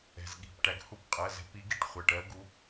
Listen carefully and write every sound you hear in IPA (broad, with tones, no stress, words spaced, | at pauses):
ɛ̤˩zɠi̤˩˧˩pʈæ˩ɡ hu˧˥pqʼɜ˩˧˩zɛ̤˧˩˧p i˧˥ɡi˧˩˧ʈχʷɜ˩˧˩ʈ ɜ˧˥ɡu˧˥